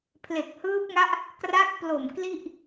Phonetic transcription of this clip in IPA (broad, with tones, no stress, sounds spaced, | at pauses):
pʰ l e˨˩ k̚ h ɯː˦˥ p̚ ŋ a˦˥ ʔ | k r a˦˥ k̚ p l o˨˩ m k l i˥˩ ʔ